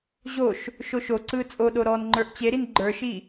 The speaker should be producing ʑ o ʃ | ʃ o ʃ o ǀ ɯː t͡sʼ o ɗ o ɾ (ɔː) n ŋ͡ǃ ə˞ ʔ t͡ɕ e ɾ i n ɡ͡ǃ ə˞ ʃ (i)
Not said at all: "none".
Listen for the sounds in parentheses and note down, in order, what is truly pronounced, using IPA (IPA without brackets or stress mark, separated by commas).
ɔː, i